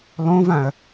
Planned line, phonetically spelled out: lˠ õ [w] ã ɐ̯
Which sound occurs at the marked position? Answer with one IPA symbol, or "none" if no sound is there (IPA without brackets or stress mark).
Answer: v